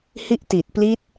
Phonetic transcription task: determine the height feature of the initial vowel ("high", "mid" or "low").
high